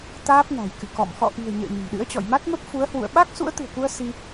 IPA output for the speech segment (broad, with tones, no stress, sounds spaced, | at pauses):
t̪ aː˦˥ p̚ n a̤˨˩ j k ɨ̰˧˨ k ɔ̰˧˨ m x ɔ̰˧˨ ʔ i̤˨˩ ə̯ ɲ ə̰ː˧˨ ɲ ə̤˨˩ m ɗ ɨ̰˧˥ ə̯ t͡ɕ ɔ̰˧˨ j m a˦˥ t̚ m ə˦˥ p̚ f u˨˦ ə̯ h w ṵ˧˨ ə̯ ɓ a˦˥ k̚ s ṵ˧˥ ə̯ t̪ ɨ̤˨˩ ə̯ k u˧ ə̯ s i˧